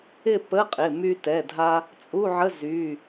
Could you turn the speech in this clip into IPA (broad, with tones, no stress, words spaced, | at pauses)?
ɪ˥˧pə˧˥˧qʼɪ˩˧˩ my˧tɛ˩˧˩dʱa˧ | t͡sʼu˧˥˧ʕə˧˥˧zy˩˧˩